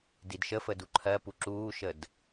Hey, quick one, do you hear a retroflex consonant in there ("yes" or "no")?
no